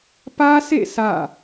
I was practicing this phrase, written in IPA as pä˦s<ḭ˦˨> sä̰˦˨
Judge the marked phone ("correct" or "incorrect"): incorrect